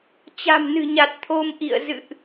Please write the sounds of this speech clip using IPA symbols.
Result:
t͡ɕ a̤˨˩ m n ɨ̤˨˩ ɲ a˨˩ t̚ t̪ʰ o˧ m ʔ ḭ˧˨ ə̯ z ɨ̰˧˨ ʔ

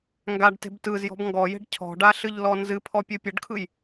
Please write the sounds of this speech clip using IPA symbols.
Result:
ŋ ɡ a ɖ t e̤ b t ɯ z j ɔ̤ b ŋ ɡ ɔ j e̤ ɖ cʰ ɔ̤ ɖ a ɬ ɨ ʎ l ɔ n z ɨ pʰ ɔ pʲ ɨ pʲ ə ɖ kʰ ɯ j

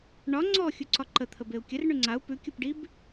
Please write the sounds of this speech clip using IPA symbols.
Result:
ɳ ɒ ŋ͡ǀ ɔ xʲ u ǀ ɒ ǃ ə t̪ʰ ə b e u̯ kʲ ə r ɳ ʉ ŋ͡ǀ a u̯ p ʉ kʲ u p ɖ i b

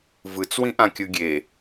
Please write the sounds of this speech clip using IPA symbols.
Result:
v ɯ t͡s w ĩ ʔ ã kʲ ɯ ɡʲ e

